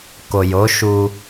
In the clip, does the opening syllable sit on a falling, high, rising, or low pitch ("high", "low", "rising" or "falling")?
low